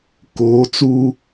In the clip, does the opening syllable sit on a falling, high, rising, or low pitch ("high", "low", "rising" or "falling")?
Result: rising